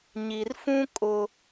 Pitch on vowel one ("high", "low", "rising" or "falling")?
low